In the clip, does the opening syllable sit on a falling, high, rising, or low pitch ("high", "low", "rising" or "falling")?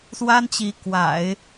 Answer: high